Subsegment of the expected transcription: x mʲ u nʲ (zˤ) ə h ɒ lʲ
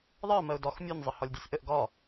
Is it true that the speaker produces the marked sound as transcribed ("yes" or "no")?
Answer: yes